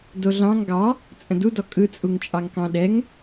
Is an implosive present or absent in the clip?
present